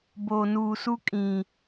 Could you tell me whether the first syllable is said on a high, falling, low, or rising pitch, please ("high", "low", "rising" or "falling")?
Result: low